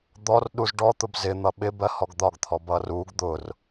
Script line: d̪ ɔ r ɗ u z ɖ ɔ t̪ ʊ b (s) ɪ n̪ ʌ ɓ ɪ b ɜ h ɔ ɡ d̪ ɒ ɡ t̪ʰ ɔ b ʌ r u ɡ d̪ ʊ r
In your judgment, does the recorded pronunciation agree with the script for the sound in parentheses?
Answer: no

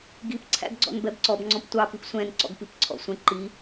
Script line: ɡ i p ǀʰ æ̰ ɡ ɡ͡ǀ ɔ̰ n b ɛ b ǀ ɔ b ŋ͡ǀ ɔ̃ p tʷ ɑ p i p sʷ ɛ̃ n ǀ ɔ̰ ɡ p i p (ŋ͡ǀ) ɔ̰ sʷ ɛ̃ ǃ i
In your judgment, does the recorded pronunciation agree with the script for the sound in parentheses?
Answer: no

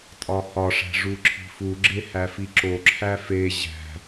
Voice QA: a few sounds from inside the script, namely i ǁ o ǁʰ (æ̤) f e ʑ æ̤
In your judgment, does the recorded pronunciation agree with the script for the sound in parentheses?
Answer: no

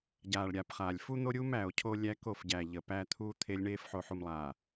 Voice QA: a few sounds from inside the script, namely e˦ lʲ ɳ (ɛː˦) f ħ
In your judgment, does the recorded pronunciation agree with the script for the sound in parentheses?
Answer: no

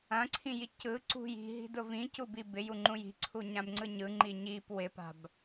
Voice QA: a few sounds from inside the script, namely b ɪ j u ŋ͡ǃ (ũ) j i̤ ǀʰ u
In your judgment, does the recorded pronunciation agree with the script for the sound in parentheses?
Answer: yes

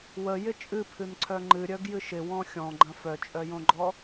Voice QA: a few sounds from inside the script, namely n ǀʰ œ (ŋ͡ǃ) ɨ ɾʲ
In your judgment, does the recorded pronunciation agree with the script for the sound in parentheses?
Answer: yes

